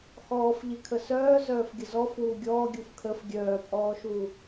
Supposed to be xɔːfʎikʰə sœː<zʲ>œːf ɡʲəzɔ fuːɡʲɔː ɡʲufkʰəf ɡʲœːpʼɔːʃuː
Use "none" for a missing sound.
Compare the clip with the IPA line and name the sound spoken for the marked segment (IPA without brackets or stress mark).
z